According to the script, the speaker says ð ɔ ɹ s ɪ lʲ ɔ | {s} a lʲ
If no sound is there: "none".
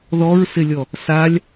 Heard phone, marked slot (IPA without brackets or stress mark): s